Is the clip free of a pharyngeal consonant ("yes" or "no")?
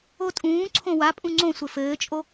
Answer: yes